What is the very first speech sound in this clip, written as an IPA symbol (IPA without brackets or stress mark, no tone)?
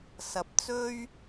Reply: s